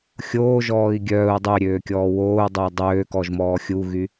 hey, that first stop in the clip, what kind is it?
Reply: plain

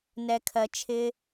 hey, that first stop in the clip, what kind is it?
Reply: aspirated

